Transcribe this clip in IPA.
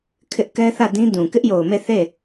kʰ ɪ˦ ʔ k ɛ˦ θ ä˦˨ d ĩ˦ d ũ˨ k ɪ˦ ʔ j o˨ ʊ̯ m e˦˨ θ e˦˨

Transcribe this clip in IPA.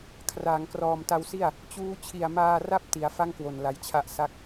kʰ r aː˩˦ ŋ k r ɔː˨˩ m t a˧ w s i˥˩ a̯ | t͡ɕ uː˦˥ t͡ɕʰ i˨˩ a̯ m aː˧ r a˦˥ p̚ t i˩˦ a̯ f a˥˩ ŋ k w o˨˩ n l a˧ j t͡ɕʰ a˥˩ ʔ s a˥˩ k̚

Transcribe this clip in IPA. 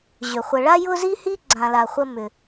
ʑ ʏ˩ χʷ ə˨ ɭ a˦ j ʊ˦ z i˦ h i˦ ɡ͡ǀ ã˩ l a˩ χʷ ə˨ m ʏ˩

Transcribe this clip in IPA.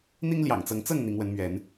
n̪ i˦ ŋ l j ɑ̰˨˩ ŋ t͡s ɤ˨˦ ŋ t͡s ɤ˥˨ ŋ n̪ i˨˦ ŋ w ə˨˦ n m ɥ ɛ˨˦ n

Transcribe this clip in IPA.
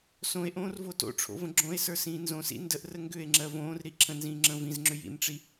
s õ e̯ ʔ õː r v o t o̰ ʈ͡ʂʰ o̰ v ə̃ ɡ͡ǁ õ e̯ s ə˞ s ĩː n z õ s ḭ n d ə ʔ r ə ŋ ɡ ʏ e̯ ŋ͡ǁ ɜ v õː r ɾ i ǁʰ ə̃ n z ĩː ŋ͡ǁ ə̃ː v ĩ z ŋ͡ǁ ʏ j ḭ n ʈ͡ʂ i

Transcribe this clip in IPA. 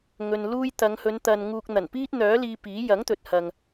ŋ ɵ˧ n l uː˥ j t̪ ɐ˨˧ ŋ h ɵ˨˧ n t̪ ɐ˨ n ŋ uː˨ k̚ n̪ ɐ˨˩ n p iː˥ t̚ n̪ œː˨˥ l iː˧ p iː˨˥ j ɐ˨˥ ŋ t̪ ɵ˨ t̚ h ɐ˨ ŋ

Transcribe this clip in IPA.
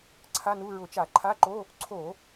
ǀʰ a˧˥˧ n u˧˥˧ ɹ ʊ˧˩˧ t͡ʃ a˧˩˧ ǃʰ a˧˥˧ ǃ o˧˥˧ | ǀʰ o˧˩˧

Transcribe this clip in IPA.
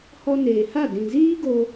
h ɔ˧ n eː˨ h a˦˨ d ĩ˨ z iː˦ ɡ o˧

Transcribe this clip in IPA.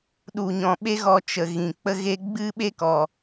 ɗ u˨ ɲ ɔ̃˨ ɓ e˦ ɣ ɔ˧ t͡ʃ ə˨ ɣ ĩ˨ k͡p ə˦ ɣ e˦ ɡ͡b ɨ˦ ɓ e˦ k ɔ˨

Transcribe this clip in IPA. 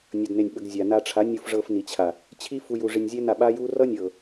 nʲ ʌ˧ d n e˧ nʲ ɓ ə˧ ɡ zʲ a˨ n a˧ ʈ͡ʂʰ a˨˦ nʲ u˧ f ʐ ɤ˧ f n i˨ t͡ɕʰ a˨ | t͡ɕʰ i˦ f u˧ j u˧ ʐ i˧ nʲ zʲ ɛ˦ n a˦˨ ɓ a˦ j u˦ r ʌ˦ nʲ ɤ˨

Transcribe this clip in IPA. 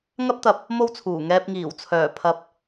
ŋ ɐ˥ p̚ t̪ ɐ˧ p̚ | m o˥ w t͡sʰ uː˨˩ ŋ ɛː˧ p̚ ŋ iː˨˩ w t͡sʰ œː˨˩ pʰ ɐ˧ p̚

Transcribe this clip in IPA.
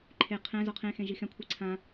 ǃʰ e qʰ ɛ̃ z ɔ qʰ ẽ x ẽ ʒ i x ɛ̃ kʷʰ i ǀʰ ã

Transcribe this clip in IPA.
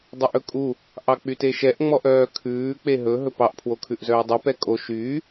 dˤ e ʔ ɵ kʼ u | ʔ ɑ k͡p y t e ʃ ɛ ʔ ŋ͡m ɔ ʔ œː kʰ ʉː k͡p e ɦ ɵ ɦ ɵ p ɑ ʔ pʰ w o kʰ ʉ ʔ z œː dˤ y p ɛ kʼ o ʃ yː

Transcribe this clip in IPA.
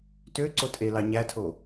t ø ǀ o tʼ e l ɑ ɲ æ tʰ o

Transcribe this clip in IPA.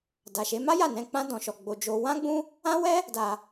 d a˨ ʃ e˨˦ m a˦ j a˦˨ n ɛ̃˧ k͡p ã˦ d ɔ̃˧ ʃ ɔ˧ ɡ͡b o˧ d͡ʒ o˧ w ã˦ ɡ͡b ũ˦ | ã˦ w ɛ˦ | d a˨

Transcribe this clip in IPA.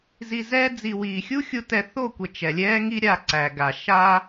z i˨ z ɛː˧ d͡z i˨ w iː˨ xʲ u˦ xʲ u˧ t ɛ˧ θ o˦˨ kʷ ɛ˨ t͡ʃ ɛ˨ lʲ ɛː˦ ŋ i˦ ɾʲ a˧ ǀ æ˨ ɡ a˨ ʃ aː˦

